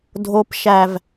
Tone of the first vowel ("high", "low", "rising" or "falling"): high